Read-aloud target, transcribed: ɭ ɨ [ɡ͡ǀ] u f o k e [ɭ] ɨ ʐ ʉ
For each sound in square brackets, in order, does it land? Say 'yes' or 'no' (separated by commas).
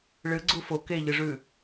yes, no